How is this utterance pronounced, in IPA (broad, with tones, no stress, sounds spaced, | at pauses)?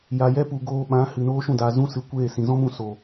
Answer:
j a˨ j ɛ˦ p u˨ ɡ oː˧ ɓ ã˨˦ h ɨ˨ n oː˦ ʃ ũ˦˨ d a˨ z ũ˦ s ɨ˨ kʷ eː˦˨ s ĩ˨ z ɔ̃˦ m ũ˧ s o˨